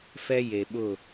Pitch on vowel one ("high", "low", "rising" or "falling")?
high